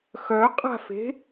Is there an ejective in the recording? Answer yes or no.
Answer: yes